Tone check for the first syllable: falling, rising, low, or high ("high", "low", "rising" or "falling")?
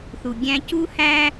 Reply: low